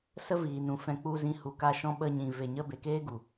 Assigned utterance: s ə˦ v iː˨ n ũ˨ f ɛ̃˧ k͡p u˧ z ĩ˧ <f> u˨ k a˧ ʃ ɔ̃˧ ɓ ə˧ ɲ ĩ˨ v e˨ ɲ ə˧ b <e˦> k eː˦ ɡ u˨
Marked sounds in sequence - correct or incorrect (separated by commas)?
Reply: incorrect, incorrect